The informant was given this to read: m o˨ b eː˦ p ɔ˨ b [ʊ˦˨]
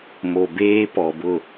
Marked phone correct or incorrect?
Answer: correct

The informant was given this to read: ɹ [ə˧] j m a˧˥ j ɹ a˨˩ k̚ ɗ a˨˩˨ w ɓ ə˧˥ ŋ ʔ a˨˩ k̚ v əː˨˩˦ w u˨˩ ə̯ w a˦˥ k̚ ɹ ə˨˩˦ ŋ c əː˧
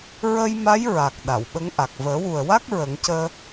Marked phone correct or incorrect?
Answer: correct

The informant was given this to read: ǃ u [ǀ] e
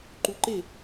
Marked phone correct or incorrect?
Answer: incorrect: ǃ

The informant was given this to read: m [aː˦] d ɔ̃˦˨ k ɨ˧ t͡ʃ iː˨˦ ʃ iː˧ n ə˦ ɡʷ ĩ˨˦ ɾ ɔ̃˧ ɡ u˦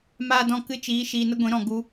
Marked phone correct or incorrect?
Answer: correct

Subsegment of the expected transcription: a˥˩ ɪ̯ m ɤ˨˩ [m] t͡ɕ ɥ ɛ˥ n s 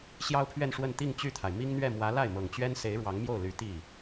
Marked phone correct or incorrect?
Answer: incorrect: ŋ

